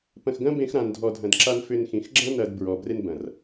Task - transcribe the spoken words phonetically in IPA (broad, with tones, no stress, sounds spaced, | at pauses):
p ɐ̃˧ x ɡ ɐ̃˦ b ẽ˦ x ɾ ã˧ n dʱ ɔ˧ dʱ ɐ̃˧ d ǁ a˧ n f ʏ˧ n x ĩ˨ x ɡ͡ǁ ɐ̃˦ n ɐ˧ d b ɹ ɔ˨ b r e˧ n b ɐ̃˨ r